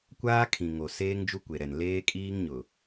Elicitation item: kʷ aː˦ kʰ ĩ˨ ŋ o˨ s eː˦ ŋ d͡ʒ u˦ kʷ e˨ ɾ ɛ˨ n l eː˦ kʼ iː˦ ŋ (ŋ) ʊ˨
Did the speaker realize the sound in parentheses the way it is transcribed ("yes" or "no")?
no